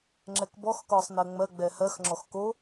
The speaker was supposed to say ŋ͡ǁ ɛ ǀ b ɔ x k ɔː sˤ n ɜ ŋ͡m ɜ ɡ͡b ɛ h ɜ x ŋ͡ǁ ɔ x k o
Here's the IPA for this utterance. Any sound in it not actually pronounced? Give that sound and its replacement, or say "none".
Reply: ǀ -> k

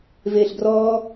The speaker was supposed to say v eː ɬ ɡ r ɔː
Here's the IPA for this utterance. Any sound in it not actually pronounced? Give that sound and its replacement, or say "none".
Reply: none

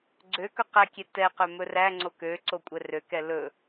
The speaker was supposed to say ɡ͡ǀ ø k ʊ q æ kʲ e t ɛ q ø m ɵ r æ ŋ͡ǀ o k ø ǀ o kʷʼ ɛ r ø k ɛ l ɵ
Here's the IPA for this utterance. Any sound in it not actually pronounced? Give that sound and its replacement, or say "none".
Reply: ʊ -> ɵ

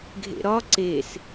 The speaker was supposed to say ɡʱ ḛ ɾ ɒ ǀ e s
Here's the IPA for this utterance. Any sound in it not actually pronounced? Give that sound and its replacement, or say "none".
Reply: none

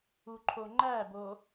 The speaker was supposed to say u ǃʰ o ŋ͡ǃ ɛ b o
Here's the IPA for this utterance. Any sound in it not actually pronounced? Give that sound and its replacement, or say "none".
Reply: ɛ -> æ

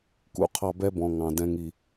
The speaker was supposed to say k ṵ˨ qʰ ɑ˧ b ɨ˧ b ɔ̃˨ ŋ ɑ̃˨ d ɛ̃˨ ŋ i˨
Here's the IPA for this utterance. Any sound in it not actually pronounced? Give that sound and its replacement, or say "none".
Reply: ɨ˧ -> ɛ˧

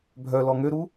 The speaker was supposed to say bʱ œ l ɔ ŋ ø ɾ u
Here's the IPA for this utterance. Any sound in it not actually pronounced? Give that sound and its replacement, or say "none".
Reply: none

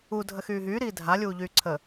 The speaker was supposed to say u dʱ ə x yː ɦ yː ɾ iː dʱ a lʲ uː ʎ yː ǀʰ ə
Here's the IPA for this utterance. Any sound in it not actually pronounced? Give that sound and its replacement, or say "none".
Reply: none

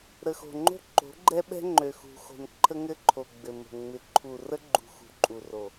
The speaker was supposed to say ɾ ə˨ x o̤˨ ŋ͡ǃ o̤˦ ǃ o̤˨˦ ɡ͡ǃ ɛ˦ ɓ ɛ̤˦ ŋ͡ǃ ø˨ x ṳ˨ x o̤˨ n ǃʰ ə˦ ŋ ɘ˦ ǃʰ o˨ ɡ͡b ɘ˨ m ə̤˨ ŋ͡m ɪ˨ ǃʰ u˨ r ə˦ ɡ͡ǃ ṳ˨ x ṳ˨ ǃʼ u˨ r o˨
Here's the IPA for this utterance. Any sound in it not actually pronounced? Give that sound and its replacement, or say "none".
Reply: none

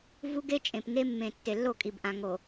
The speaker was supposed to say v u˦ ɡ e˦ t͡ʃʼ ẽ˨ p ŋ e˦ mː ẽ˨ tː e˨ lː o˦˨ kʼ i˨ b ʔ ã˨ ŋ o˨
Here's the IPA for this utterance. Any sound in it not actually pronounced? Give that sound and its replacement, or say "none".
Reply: none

